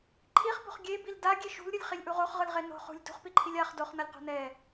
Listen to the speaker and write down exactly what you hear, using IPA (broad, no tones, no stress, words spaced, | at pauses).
ǃʰiχbo̤χ ɡʲebil daɡʲe ʃṳlɾʲɯlʲχilʲʔu ʁoχʁɯlʁe no̤ χṳlʲ dṳχpiǃʰilʲ aχ doχnʌlʲqo̤ nɛ